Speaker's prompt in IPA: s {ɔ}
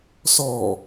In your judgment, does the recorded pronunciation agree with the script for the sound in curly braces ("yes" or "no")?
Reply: yes